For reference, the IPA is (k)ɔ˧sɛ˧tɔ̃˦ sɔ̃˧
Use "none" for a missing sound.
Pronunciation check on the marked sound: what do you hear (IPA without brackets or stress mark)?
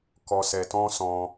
k